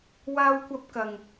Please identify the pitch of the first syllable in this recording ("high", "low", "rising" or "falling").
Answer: high